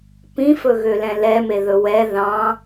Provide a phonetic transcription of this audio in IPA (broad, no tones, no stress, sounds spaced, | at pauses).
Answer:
p ĩ f ɵ ɣ ø l ɛ̃ l ɛ m e ð ɵ w ɛ ð ɑ̃